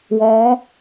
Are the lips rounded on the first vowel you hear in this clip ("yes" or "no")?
yes